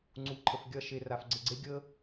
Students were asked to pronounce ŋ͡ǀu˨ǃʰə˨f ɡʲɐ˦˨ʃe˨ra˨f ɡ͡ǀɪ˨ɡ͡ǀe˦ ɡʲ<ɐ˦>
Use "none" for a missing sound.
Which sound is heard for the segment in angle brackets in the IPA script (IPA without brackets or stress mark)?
ə˦